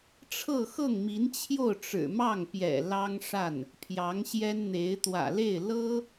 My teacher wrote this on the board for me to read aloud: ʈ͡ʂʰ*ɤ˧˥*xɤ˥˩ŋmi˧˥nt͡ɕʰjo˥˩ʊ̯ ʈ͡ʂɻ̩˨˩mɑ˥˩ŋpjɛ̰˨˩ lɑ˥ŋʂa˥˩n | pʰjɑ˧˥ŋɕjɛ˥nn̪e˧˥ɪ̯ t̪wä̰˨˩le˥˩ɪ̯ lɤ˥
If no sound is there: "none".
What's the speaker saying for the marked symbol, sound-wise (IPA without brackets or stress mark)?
ɤ˥˧